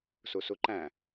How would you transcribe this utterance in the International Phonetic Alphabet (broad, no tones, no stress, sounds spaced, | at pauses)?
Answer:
s u s u ǃ æ̃